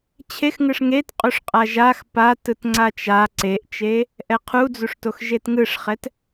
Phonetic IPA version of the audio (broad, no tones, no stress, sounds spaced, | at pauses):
t͡ɕʰ e x ŋ ɯ ʂ ŋ e t qʼ u ʂ qʼ a ʒ a x p a t ɯ t ŋ͡ǀ a t͡ʃ a ǀ e ʔ t͡ʃ e | ʔ ɛ qʰ u d͡z u ʂ t o x ʒ e t ŋ ɯ ʂ χ ɛ t